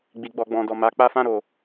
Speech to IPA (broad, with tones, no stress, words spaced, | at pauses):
ɡ͡bi˨ɡ͡bɔ˨ɡ͡bɔ̃˨dɔ˨ ma˨ k͡pa˧fã˧ɾo˨